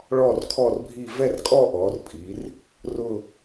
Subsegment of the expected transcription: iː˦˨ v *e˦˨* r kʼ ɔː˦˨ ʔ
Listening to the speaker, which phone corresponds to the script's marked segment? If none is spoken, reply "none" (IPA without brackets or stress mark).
ɛ˦˨